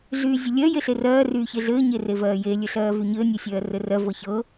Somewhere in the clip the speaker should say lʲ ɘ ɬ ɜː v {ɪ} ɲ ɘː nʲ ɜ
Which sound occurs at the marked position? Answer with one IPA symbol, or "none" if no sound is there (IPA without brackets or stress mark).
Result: y